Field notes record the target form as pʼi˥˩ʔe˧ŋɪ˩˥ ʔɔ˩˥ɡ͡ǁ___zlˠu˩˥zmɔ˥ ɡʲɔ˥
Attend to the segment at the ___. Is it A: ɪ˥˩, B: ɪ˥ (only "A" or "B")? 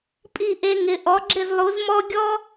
A